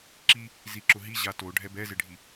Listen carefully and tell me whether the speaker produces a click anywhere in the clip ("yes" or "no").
yes